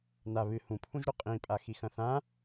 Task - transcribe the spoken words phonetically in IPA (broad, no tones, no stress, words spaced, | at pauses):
na βɨ hũpʰũʒɾu qʼĩpʼa xixɐ̃θã